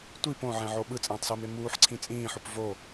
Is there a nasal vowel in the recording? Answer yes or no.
yes